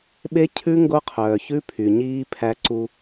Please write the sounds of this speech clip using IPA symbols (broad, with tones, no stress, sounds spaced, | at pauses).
ɓ e˦ cʰ ʉ˦ ŋ ɡ o˦ qʰ œː˨ ç ʉ˦ pʰ y˨ ɲ iː˦ pʰ æ˦ ǀ u˦